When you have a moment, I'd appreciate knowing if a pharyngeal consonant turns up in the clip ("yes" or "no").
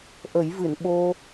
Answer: no